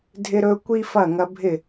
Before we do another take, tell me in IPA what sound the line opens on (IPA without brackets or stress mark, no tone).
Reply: dʱ